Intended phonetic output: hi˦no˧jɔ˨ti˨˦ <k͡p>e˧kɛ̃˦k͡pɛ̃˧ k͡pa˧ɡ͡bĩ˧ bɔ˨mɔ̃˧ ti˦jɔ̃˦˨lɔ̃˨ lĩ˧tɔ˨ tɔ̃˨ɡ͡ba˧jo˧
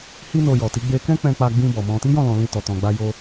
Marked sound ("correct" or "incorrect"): incorrect